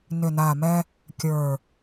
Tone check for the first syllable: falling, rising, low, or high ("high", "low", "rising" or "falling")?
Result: low